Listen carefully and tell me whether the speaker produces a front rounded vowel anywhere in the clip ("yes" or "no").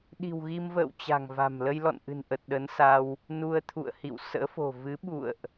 no